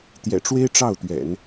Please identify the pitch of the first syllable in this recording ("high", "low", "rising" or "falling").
low